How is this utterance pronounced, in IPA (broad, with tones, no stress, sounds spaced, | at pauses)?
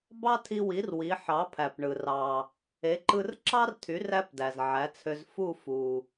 b ɑ˥ tʰ i˧ w i˩˥ r w i˩˥ ħ ɑ˩˥ pʰ æ˩ p ɳ ɯ˩ r ɑ˩ | e˩˥ ǃ ɯ˧ r ǁ ɑ˥ r tʰ y˩˥ r æ˥ p d æ˩ z ʕ æ˩˥ t͡sʰ ø˧ z f u˥˩ f u˩